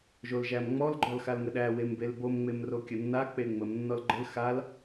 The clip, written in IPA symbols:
ʒ o l ʒ æ m ŋ͡m ɔ l ɡ͡ǃ ɔ l x a l ŋ ə ɗ æ w e m b e l b o m ŋ͡m e m r o kʲ ə nː a k͡p e ŋ͡m ə m nː ɔ l ɡ͡ǃ ə l x a l

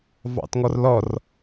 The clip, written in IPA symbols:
v ɑ̰ t ŋ ɔ r l ɔ r

